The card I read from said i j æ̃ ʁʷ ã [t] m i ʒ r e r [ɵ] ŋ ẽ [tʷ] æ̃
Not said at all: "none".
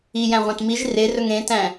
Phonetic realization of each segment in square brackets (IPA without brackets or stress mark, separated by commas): t, ɵ, t